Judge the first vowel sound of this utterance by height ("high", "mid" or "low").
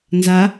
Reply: low